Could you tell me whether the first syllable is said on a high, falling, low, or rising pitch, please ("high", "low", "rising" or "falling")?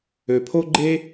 low